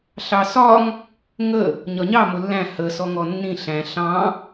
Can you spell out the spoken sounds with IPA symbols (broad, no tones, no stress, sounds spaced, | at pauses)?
ɬ ɑ s ɒ ŋ | ŋ ə | ɲ ɒ ɲ ɑ m ʊ lː æ̃ h ə s ɔ ŋ ɔ nː ĩ ɬ æ̃ ɬ ɑ̃